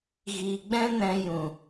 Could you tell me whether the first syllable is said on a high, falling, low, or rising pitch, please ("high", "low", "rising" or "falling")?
low